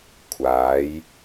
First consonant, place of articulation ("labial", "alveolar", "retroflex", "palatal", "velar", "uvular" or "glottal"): velar